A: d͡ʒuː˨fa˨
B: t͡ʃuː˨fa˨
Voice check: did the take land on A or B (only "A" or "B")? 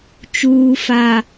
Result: B